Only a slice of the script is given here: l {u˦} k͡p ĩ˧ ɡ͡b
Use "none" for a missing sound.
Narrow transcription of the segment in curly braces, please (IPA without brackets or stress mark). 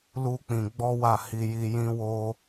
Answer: u˦